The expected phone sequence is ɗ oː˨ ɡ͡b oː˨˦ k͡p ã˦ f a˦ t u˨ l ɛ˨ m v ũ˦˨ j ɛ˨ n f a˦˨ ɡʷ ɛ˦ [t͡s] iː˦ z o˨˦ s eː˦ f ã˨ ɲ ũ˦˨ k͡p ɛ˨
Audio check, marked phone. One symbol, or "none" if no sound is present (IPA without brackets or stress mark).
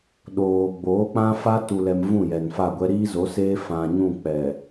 ɾ